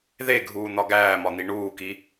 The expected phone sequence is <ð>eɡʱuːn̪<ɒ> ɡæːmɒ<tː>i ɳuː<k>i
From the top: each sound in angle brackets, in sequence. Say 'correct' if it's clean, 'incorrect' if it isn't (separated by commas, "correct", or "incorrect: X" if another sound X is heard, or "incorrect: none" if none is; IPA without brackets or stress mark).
correct, correct, incorrect: n̪, correct